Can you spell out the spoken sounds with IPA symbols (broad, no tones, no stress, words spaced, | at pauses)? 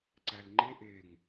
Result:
ǀælŋ͡ǃe ʔeŋ